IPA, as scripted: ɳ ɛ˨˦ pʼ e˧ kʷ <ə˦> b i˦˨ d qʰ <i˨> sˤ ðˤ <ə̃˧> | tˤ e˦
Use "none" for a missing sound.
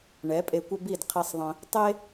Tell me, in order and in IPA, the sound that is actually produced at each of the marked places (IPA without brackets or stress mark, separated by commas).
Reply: ə˦, i˧, ə̃˧